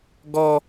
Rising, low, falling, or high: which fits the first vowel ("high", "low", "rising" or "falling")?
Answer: high